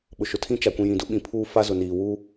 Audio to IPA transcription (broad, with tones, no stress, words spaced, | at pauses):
ɓʊ˨ʃʊ˨tʰĩ˦ t͡ʃa˨kʷĩ˨jĩ˨dʊ˦ ɓĩ˨pʰuː˦ fa˦ zʊ˨niː˨wuː˦